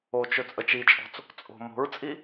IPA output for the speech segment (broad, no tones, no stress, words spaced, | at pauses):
ot͡ʃɵ t͡sʼət͡ʃit͡ʃʼɔ̤t͡s | t͡sʼo̤ mo̤ɹt͡sʼi